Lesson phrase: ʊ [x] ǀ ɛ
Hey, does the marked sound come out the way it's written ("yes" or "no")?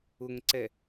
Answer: no